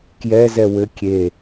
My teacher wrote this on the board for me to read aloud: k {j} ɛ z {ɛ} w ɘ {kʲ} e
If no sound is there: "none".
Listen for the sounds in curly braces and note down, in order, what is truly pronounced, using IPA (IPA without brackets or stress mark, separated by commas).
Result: j, ɛ, kʲ